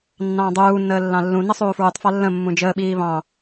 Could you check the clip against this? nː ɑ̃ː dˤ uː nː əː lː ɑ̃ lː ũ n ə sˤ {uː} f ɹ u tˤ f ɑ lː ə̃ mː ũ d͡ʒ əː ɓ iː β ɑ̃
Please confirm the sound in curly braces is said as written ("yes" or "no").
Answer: yes